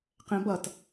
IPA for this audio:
qɛ̃bʌt

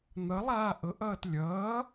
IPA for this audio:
n̪ʌlˠaː ʔɤʔʌːt lʲʌː

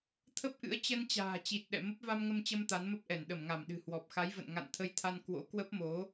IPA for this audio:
t̪ʰə˦˥p̚ʔɨ̰˧˥ə̯ t͡ɕə˧nt͡ɕa̤ː˨˩ t͡ɕi˨˩t̚ ɗɛ̰˧˨mə˦˥p̚ va˧mŋə˧mt͡ɕə˧m t̪a˨˦nmə˦˥p̚ʔɛ˧˩n ɗə˧˩mŋa˧˩m ɗɨ̤˨˩hwɔ˨˩p̚xa˨˦jvə̰˧˨n ŋa̰˧˨n t̪ʰə˧jt̪ʰa˧n kwo̰˧˥kwə˦˥p̚mo˨˦

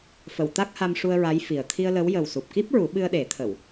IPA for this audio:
fə˨˩˨w t̪a˦˥k̚ha˧mʂu˧ə̯ ɹa˧˥jfi˨˩ə̯ t̪ʰi˧ə̯lə˧˥w jə˨˩wsu˨˩p̚ki˦˥p̚ɹu˨˩˦ ɓɨ˧ə̯ɗe˨˩˦t̪ʰə˨˩˨w

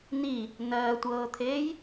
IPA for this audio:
ni | nɜtʷɤːt̪ʰeːj

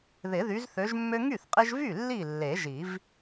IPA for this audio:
ðɪ˨˩˦ðy˨˦zθø˨˦ʒmːø˦ ŋy˥˩θqʼɪ˦ʒvy˥˩ lːi˥˩ lːe˨˩˦ʒi˨˩˦v

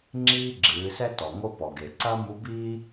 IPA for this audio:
ŋ͡ǁiː˥ɡ͡ǁɨː˩˧sɛ˥tɔ˩ ŋo˥pɔ˩ɡe˩ ǀɐ˥ mu˧˥biː˥

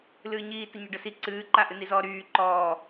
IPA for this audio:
lɨːɲiːtə ɲɔɖəsi ǀɨːǃa ʔɨnizɔːɾyː ǃɔː

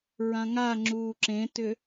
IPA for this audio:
ɹãŋa ŋ͡ǁuːǁẽtʏ

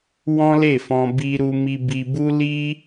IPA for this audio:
wɔ̃˦le˦˨fɔ̃˧ bi˧ɾu˧ mi˧bi˧bu˦ li˦

